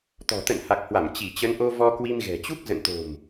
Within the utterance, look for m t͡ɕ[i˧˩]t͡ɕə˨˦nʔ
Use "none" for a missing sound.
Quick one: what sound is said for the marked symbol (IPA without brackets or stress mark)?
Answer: i˧˩